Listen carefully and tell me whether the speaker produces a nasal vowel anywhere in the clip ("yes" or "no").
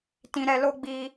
yes